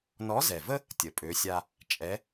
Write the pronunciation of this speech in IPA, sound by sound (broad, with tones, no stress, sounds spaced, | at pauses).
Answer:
n ɔ˧˥ z ɛ˨˩ v ə˥ | tʲ ə˨˩ pʼ ø˧˥ sʲ a˥ | t͡ʃʼ ɛ˧˥